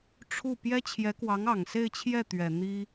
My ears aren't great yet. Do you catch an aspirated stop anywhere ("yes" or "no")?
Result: yes